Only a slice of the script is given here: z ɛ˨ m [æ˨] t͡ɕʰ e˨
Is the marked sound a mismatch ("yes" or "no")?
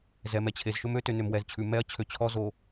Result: yes